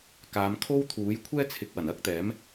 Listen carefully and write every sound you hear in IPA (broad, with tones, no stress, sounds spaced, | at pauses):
k aː˨˧ m kʰ o˥ w t̪ʰ uː˨˥ j kʷʰ ɛː˥ t͡sʰ ɪ˨˥ k̚ w ɐ˨˩ n ɐ˥ k̚ t̪ ɛː˨˥ m